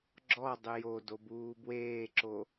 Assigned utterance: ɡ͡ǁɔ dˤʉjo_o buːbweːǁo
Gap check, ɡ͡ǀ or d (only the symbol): d